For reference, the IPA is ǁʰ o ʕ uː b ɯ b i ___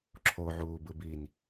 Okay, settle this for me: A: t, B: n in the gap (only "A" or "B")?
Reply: B